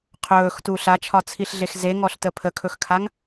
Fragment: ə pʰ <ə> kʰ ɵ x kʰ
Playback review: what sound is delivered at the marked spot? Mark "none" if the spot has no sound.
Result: ə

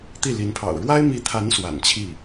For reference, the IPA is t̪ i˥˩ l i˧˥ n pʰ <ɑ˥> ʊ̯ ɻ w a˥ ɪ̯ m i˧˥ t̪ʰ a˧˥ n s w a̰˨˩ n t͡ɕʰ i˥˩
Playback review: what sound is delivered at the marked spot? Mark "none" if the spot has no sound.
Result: ɑ̰˨˩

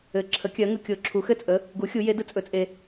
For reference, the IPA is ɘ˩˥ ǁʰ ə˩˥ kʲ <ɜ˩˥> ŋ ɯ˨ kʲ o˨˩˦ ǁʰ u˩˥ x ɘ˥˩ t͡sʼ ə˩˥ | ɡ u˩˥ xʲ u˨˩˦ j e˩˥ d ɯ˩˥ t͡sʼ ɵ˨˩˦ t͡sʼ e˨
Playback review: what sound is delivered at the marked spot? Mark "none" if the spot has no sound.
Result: ɜ˩˥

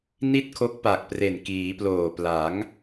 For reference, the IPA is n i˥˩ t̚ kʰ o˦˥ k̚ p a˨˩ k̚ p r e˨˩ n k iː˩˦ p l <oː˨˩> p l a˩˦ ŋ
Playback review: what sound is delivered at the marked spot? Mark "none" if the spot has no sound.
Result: oː˨˩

